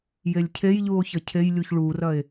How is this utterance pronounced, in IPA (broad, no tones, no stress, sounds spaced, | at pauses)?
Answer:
j e lʲ cʰ e j ʎ u o̯ ç ɐ cʰ e j lʲ u ç ɭ u r ɐ e̯